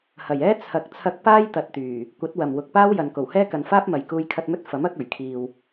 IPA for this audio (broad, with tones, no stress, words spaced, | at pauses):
hɐ˨˩jɛː˥ t͡sʰɐ˨˥k̚t͡sʰɐ˧k̚paː˥j t̪ɐ˧t̚t̪yː˨˩ | kʷɐ˨˥t̚wɐ˨˩mwʊ˨k̚paː˥w jɐ˨nko˨˩whɛː˥ kɐ˨nfaː˥p̚mɐ˨jkuː˧j kʰɐ˧t̚mɵ˥t̚ fɐ˨˥mɐ˨˥k̚ ɵ˨˩ɥkʰiː˨w